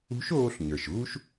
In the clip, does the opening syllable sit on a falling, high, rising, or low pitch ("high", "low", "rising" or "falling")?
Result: rising